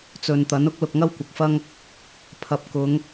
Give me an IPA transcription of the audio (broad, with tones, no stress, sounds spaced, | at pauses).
t͡s ɵ˨ n t̪ ɐ˨˥ n ʊ˨˥ k̚ l ʊ˨ k̚ ŋ ɐ˥ w kʷ ɐ˨ k̚ f ɐ˥ ŋ | pʰ ɐ˨ p̚ k ʊ˨˧ ŋ